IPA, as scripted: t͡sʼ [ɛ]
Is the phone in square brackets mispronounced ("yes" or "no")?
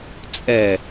no